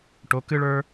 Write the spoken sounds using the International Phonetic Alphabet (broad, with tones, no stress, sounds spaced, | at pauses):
ʈ o˩˧ k ɨ˦ ɭ ə˞˦